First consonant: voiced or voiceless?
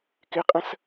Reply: voiceless